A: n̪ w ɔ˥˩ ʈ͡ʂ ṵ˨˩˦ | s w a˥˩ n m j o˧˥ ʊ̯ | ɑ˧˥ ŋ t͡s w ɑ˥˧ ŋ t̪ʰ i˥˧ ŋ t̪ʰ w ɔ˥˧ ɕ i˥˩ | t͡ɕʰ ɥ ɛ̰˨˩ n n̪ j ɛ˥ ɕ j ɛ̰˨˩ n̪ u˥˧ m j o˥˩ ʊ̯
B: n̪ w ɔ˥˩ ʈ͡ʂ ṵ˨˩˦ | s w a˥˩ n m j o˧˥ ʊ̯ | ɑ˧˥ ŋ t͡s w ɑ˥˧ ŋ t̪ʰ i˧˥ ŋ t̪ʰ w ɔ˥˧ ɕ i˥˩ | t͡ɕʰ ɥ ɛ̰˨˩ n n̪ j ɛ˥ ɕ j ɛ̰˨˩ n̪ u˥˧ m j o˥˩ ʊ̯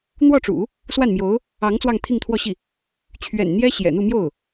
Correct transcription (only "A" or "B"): A